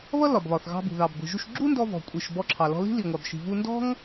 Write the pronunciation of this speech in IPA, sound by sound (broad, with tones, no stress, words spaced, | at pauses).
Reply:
βʌ˥ lɒ˩bβɒ˩θɣɑ̤˧bṳ˩ ðɑ˩bɡʷi̤˩ʒu˧ʃ ɡ͡ǁu˥ndɔ˧ vɔ̤˩kʷʼi˩ʃ bɔ˧ǁʰɑ˩lɔ̤˧li̤˥ li˩ŋʷɑ˩bʃi̤˩ vu˧ndɔ̤˥ŋ